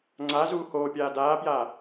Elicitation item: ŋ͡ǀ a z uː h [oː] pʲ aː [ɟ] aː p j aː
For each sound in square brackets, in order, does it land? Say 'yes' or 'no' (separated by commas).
yes, no